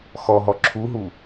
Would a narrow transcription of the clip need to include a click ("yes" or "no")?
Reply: yes